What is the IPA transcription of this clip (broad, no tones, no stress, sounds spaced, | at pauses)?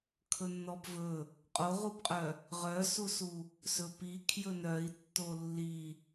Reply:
kʰ ɵ nː ɔ b v ɵ | qʼ o ʁ u b qʼ œ | ʁ œ s u s u | s ɵ p i kʰ j ɵ n œ i̯ tː o lː i